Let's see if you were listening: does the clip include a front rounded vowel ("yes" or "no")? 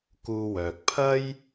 yes